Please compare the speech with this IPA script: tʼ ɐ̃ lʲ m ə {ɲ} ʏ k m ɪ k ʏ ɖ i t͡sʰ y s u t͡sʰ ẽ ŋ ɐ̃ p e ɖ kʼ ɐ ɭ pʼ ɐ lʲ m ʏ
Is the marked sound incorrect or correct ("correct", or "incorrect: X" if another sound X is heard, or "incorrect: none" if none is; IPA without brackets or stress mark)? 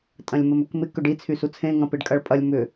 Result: incorrect: m